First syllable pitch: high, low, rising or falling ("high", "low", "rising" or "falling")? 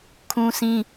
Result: high